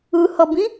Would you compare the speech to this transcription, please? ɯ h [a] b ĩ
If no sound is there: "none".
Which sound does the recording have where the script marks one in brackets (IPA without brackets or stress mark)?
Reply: ʌ